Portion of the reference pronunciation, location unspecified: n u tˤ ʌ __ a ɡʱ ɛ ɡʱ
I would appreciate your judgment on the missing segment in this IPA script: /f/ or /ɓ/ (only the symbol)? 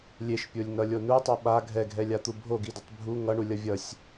ɓ